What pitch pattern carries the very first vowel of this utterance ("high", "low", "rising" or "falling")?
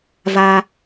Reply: high